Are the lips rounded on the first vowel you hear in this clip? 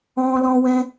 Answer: yes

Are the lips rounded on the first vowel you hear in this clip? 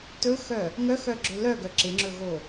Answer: yes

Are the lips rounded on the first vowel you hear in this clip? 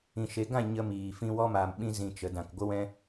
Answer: no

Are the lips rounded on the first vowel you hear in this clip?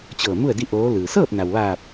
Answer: no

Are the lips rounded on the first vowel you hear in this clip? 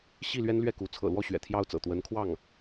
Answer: no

